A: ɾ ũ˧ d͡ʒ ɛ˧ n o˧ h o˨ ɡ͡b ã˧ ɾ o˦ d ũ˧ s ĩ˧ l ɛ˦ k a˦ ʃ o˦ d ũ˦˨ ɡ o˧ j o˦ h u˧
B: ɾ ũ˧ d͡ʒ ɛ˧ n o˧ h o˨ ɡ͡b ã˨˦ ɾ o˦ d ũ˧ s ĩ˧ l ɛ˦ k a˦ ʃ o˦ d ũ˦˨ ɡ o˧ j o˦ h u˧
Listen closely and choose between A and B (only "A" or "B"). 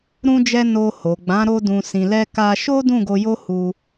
B